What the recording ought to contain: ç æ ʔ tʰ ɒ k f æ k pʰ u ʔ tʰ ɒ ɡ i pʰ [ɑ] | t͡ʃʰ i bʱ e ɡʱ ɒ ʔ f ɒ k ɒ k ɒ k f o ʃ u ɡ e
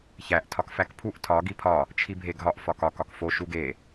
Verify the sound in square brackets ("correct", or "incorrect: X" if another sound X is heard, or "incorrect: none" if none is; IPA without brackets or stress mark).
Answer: incorrect: ɒ